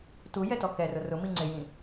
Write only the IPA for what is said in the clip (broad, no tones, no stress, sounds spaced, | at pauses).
t u j ɛ t ɔ k ɛ r ʊ r ʊ m i ŋ͡ǀ ɪ j ĩ